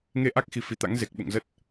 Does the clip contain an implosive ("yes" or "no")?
yes